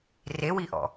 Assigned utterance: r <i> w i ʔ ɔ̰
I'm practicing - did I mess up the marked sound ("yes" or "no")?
yes